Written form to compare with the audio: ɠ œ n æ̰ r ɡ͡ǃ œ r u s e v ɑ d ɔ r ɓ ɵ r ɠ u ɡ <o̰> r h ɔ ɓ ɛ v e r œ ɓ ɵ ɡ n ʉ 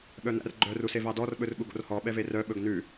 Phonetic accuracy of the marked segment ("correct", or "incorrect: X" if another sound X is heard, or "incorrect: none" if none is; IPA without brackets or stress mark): correct